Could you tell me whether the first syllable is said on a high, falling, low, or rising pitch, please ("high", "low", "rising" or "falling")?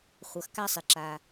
low